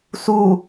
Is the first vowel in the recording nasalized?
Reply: no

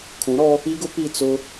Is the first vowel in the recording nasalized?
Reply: yes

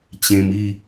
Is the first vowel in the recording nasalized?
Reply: yes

